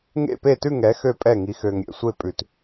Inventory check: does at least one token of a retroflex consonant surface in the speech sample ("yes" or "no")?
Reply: no